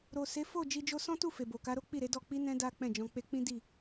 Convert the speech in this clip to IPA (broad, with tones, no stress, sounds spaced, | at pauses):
ɾ o˨ s e˨˦ f o˦˨ d͡ʒ i˧ d͡ʒ o˦ s ɔ̃˦ t u˦˨ f e˨ b o˨ k a˨˦ ɾ o˦ k͡p i˦˨ ɾ e˨˦ d ɔ˦˨ k͡p i˧ n ɛ̃˧ d a˦ k͡p ɛ̃˦˨ d͡ʒ ɔ̃˧ k͡p e˧ k͡p ĩ˦ d i˦˨